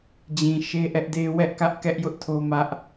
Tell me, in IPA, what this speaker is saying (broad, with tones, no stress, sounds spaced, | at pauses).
d͡ʑ ĩ˨ ʃ e˦ ʔ ɛ˦ ʔ d e˦ w ɛ˦ ʔ k ä˦ ʔ k ɛ˦ ʔ j ʊ˦ ʔ tʰ o˦ m ä˦ ʔ